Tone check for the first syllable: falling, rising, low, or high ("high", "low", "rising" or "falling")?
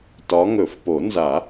rising